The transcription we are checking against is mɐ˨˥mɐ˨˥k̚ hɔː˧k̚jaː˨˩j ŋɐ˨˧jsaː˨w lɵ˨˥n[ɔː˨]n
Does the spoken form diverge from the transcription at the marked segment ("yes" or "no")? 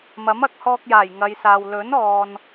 no